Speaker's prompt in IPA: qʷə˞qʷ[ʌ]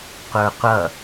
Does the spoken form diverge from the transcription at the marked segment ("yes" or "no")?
no